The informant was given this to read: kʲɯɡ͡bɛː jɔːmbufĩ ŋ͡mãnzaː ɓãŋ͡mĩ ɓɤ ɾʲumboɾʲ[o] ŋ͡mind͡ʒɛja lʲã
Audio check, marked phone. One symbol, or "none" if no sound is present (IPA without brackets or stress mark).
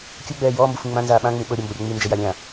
o